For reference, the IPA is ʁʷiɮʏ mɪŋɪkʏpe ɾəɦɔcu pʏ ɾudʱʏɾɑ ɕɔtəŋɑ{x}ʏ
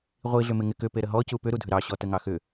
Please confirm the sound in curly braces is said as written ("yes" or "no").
yes